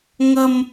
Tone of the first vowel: high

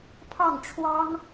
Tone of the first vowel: falling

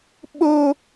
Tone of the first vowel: high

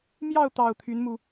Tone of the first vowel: falling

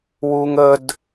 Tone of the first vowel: high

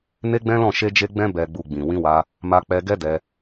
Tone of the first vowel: high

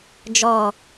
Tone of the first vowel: falling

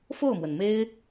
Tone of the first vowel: falling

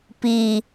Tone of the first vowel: low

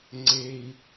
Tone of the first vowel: low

